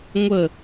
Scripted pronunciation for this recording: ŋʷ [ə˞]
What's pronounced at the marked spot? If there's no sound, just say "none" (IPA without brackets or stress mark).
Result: ə